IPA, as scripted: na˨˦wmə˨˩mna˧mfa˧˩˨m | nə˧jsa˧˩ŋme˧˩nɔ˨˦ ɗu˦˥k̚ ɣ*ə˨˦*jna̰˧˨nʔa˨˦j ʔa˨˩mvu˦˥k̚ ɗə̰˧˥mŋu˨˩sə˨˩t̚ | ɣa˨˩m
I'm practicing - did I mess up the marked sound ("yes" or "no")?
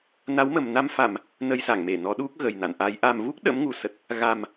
yes